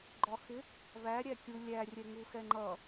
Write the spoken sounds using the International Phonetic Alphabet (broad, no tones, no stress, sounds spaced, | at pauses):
ɡ͡ǃ ɒ x ɪ | β æ ɾʲ æ kʲ u lʲ æ rʲ ɛ ŋ u x ɛ ŋ͡ǃ ʌ